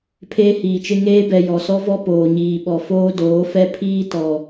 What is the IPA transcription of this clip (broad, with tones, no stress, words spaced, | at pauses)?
pʰeː˦hiː˨t͡ʃɪ˦ ŋeː˦bɛ˨ jɔ˨sɔ˦vɔ˦ poː˨ɲiː˨ ɓɔ˨foː˦doː˨˦fɛ˦ pʰiː˦tɔ˨